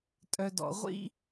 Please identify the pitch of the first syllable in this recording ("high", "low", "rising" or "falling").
low